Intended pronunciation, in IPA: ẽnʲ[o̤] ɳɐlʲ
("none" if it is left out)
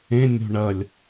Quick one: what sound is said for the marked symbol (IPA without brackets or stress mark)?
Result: o̤